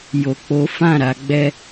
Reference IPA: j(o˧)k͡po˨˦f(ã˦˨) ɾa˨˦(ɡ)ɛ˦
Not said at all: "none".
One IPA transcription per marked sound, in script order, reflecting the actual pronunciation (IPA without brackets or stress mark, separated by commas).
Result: o˨, ã˦˨, ɡ͡b